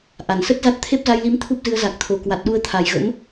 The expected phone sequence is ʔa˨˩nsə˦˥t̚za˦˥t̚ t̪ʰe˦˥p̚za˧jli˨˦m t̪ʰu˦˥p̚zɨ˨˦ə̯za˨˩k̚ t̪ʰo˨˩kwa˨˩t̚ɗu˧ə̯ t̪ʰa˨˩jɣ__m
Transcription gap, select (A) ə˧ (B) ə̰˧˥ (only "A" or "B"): B